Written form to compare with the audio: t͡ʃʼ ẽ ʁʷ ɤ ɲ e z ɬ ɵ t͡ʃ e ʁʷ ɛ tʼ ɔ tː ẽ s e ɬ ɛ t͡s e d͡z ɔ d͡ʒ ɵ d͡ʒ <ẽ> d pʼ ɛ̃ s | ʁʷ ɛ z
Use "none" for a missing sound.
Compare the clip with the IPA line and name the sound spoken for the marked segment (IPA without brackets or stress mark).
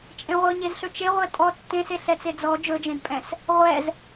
ẽ